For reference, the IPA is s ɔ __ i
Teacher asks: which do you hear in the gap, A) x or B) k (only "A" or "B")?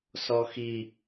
A